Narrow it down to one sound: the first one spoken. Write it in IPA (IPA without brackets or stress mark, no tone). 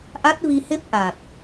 ʔ